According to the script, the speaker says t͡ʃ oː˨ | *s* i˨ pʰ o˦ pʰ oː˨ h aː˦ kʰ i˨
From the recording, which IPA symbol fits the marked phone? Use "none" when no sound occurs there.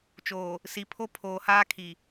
s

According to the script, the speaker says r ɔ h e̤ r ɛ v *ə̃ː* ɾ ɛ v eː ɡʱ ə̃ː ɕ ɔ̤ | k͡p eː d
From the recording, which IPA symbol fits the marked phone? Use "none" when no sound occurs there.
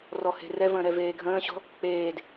ə̃ː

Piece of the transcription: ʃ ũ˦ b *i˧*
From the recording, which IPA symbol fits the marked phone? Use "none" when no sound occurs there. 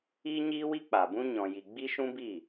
i˦˨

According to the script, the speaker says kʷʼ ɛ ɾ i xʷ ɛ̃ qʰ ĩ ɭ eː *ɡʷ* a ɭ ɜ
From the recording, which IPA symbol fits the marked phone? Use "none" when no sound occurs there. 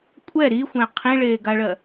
ɡ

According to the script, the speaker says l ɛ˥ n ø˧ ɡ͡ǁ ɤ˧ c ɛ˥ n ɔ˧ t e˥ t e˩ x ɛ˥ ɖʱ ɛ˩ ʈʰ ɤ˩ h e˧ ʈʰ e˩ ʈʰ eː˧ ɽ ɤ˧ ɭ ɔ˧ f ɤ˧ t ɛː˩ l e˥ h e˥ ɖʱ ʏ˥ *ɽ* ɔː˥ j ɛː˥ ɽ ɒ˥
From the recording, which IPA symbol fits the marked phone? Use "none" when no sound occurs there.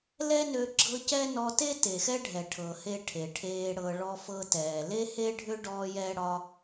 ɖ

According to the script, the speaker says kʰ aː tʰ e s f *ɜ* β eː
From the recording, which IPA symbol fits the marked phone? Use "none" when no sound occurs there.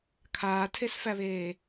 æ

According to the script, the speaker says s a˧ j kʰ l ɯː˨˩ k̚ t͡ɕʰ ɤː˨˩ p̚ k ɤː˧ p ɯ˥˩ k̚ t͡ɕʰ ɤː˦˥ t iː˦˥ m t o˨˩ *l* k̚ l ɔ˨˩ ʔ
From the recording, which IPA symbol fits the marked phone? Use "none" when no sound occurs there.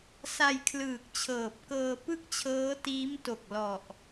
none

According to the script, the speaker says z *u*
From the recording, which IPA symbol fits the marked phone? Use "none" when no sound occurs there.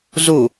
u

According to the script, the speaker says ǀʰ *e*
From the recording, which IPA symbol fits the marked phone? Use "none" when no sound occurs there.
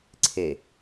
e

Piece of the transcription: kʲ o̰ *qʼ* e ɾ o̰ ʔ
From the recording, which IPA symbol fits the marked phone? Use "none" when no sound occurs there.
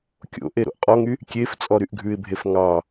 ʔ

